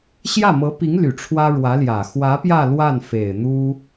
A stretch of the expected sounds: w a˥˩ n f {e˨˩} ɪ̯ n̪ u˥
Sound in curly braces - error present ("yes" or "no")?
no